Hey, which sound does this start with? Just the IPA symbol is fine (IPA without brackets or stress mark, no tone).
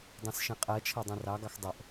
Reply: dˤ